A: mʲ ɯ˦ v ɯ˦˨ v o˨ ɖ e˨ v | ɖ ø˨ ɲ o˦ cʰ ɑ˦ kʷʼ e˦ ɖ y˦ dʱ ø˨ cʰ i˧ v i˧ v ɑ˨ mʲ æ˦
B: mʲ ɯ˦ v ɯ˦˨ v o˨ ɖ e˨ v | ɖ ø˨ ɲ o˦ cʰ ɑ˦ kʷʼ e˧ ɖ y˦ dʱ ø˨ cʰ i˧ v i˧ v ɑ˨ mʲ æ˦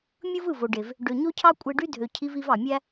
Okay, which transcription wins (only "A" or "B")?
B